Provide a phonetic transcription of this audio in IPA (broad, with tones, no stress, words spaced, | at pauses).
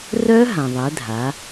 rœ˦˥ɦã˩ ðˤɛ˩˧dʱa˩˧